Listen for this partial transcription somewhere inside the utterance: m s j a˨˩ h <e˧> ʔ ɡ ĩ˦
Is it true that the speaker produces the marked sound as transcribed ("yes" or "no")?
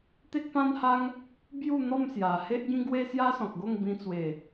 no